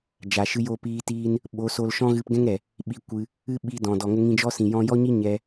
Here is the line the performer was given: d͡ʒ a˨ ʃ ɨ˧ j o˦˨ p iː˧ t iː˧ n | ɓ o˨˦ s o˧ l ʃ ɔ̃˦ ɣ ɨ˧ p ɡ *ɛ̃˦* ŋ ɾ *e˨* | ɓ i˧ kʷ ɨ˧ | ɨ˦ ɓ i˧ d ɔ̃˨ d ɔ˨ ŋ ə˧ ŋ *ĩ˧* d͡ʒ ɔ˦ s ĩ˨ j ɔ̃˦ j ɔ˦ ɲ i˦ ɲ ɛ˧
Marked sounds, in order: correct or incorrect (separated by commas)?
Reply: correct, incorrect, correct